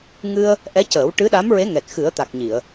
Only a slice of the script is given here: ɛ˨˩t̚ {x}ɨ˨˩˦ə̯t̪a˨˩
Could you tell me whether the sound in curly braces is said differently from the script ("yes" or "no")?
no